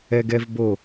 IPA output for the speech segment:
ɛ ɡ ɛ v b o

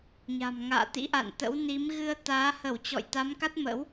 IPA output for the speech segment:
ɲ a̤˨˩ m ŋ a̰ː˧˨ t̪ ḭ˧˥ ʔ a̰˧˨ n t̪ ə̰˧˥ w n i˨˦ m ɣ ɨ˧ ə̯ t̪ aː˨˦ h ə˧˩ w t͡ɕ ɔ̰˧˨ j t̪ a˨˦ m k a˦˥ t̚ m ə̰˧˥ w

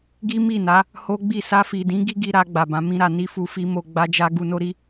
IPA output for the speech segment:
ɡ i˦ m i˦˨ n a˨˦ | h o˦ ɡ͡b i˦˨ s a˧ f i˨ d ĩ˨˦ ɡ i˦ ɡ i˧ ɾ a˧ ɡ͡b a˨ b ã˨˦ m ĩ˦ ɾ a˧ n i˦ f u˧ f i˦ m o˧ ɡ͡b a˧ d͡ʒ a˧ ɡ u˧ n o˦ ɾ i˦

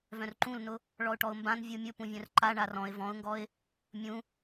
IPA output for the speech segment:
v œ̃ r ǃ ũ l n ʊ | ɭ ɔ ʊ̯ ʈ ɔ ʊ̯ m b ã n vʲ u mʲ ʊ p ũ vʲ œ̃ r ǃ a ɳ a r ɔ̃ ɪ̯ v ɔ̃ ʊ̯ ŋ ɡ ɔ ɪ̯ | mʲ ũ

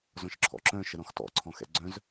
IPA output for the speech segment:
z ɔ̃ ʃ ǁʰ ɔ̰ ǁ œ̃ ʃ ə ɾ ɔ̃ x t ɔ̰ ǀʰ ɔ̃ x ɛ̰ ɡ͡ǀ œ̃ z

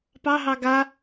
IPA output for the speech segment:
p ɑ ɦ ɑ ɡ a

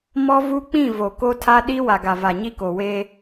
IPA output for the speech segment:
m ɔ˦ v u˦ k͡p ĩ˦˨ v o˨ k o˦ tʰ a˦ ɗ i˦ w a˨ ɡ a˨ v a˨ ɲ i˦ k o˨ w eː˦

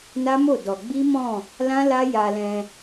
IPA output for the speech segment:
n a˦ m o˦˨ d ɔ˧ ɡ͡b i˦ m ɔ̃˦˨ | l ã˦ l a˦ j a˧ l ɛ̃˧

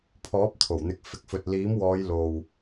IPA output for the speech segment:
pʰ ɔː˨˥ p̚ t̪ʰ o˨˩ w n̪ ɪ˨˥ k̚ f ɪ˨ k̚ f ɵ˨ t̚ l iː˨˥ m w ɔː˨˧ j l o˨ w

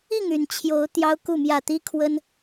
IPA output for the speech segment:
i˥˨ ŋ y˨˩ n t͡ɕʰ j o˨˦ ʊ̯ t̪ j ɑ˦ ʊ̯ k u˥˨ m j ä˥˨ t̪ i˦ kʰ w ə˦ n

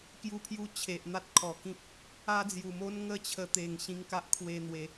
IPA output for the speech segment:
k j u˧ pʰ j u˧ t͡ɕʰ e˨ ʔ n̪ a˦ t̚ kʰ ɔ˨˩ k ĩ˦ p̚ | a˦ d͡z j u˨˩ m o˦ n ŋ ə˦ t͡ɕʰ ə˧ t̪ e˨˩ ŋ ɕ ĩ˧ ŋ k a˦ ʔ kʰ w e˧ n̪ w e˨˦

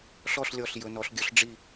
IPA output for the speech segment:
ɬ ɔ˥˨ ɬ lʲ ɔ˧˩ ɬ j ɵ˩˧ n ɔ˩˧ ɬ ɡʲ ɵ˩˥ ɬ ɖ͡ʐ i˧˩

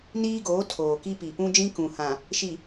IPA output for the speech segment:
n iː˦ ɡ oː˨˦ tʰ oː˨ k i˦ p i˨ p ũ˦ d͡ʒ ĩ˦ k ũ˨ h ã˨ | ʃ i˨

